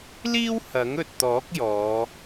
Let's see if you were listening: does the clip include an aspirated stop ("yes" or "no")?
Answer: no